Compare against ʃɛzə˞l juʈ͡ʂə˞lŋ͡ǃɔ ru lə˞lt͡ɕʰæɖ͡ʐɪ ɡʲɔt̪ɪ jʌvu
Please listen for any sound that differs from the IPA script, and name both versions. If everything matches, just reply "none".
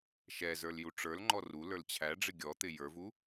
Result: ʌ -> ə˞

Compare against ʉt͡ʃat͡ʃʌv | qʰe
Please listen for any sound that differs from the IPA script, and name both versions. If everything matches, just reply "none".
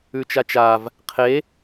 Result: ʌ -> a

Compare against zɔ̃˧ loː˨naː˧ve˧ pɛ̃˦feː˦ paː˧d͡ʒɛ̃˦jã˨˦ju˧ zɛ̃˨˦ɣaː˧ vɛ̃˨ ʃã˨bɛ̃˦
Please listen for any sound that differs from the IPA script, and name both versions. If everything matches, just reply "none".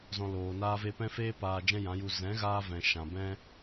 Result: none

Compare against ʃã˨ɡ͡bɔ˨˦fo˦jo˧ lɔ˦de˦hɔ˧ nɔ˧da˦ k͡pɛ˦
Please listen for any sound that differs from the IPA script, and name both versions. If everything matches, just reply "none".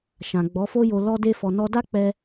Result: h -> f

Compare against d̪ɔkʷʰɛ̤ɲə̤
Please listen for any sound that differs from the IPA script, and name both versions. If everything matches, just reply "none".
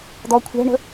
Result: ɲ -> ɳ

